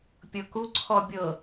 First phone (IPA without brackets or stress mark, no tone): pʲ